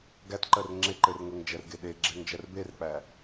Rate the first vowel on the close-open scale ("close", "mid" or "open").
open